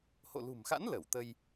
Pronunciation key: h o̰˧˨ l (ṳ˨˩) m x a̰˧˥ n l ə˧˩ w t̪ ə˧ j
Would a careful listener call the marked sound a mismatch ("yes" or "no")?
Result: no